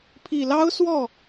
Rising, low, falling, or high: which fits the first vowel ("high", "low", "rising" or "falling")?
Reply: low